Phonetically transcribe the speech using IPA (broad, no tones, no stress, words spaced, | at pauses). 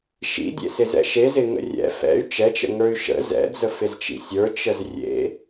ʃḭdʲḛsɪzɛ̰ ʃezɪŋə̰ rʲɛ̰ fɛ̰y̯ t͡ʃɛt͡ʃə̰ŋə˞y̯ ʃə̰ zɛ̰d͡zəfɪzt͡ʃḭ sʲə˞t͡ʃəz rʲḛ